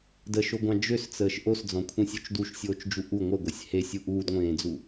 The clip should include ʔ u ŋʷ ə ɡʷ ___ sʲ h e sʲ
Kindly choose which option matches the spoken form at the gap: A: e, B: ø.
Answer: A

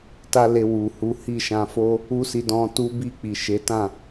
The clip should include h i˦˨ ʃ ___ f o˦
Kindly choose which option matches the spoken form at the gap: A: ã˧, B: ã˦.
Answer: A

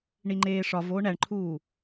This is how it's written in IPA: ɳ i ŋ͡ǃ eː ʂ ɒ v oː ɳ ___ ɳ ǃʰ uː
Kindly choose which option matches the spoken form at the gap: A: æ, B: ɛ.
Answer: A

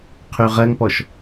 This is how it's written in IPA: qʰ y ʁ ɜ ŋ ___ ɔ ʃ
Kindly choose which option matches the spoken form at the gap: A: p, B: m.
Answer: A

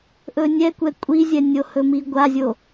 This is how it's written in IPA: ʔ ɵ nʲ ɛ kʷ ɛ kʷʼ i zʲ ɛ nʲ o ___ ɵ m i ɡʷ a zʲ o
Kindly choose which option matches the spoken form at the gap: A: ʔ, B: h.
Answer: B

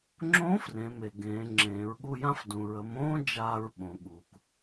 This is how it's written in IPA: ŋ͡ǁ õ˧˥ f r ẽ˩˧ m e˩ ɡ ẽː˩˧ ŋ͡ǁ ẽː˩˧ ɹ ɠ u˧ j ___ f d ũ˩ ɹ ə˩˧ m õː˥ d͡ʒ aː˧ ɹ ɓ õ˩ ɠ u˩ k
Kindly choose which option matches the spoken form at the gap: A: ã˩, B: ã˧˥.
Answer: B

